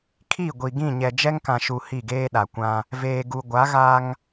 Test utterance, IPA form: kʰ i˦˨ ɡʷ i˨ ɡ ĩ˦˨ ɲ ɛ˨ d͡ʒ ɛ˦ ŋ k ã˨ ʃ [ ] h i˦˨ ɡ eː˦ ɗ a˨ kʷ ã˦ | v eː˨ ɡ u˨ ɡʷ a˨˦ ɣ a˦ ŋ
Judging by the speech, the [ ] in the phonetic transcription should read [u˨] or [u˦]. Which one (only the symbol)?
u˨